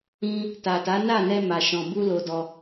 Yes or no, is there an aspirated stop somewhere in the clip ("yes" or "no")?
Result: no